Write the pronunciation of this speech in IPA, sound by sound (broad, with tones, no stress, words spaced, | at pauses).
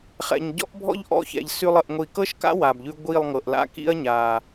χɛ̰˨ɲ ɟɔ̰˦ʔbʱɔ̰˦ʎ ʔɔ̰˦˨çɛ̰˨ʎ sʉ˧lˠ ə˨ʔŋʷi˨kɤ˦ʃka̰˦ wa˨bʎʉ˧ ɡʷi˦˨lˠŋɤ˨ʔla̰˦ kḭ˦ɐ̯ ɲa˨